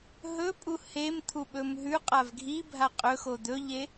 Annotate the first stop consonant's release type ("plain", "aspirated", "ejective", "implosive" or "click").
ejective